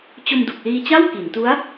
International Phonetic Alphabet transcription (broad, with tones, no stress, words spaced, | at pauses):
t͡ɕo˧mdu˨˩k̚liː˧t͡ɕa˥˩w ki˩˦n tu˦˥a̯